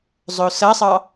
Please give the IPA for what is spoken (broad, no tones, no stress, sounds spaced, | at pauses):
zˤ ɵ ʊ̯ s ɐ sˤ ɑ